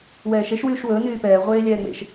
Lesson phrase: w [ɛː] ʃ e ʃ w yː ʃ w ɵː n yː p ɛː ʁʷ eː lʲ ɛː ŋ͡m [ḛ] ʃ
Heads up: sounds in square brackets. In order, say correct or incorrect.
correct, correct

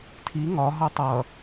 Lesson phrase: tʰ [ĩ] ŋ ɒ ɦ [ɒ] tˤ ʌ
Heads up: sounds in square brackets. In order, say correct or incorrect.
incorrect, incorrect

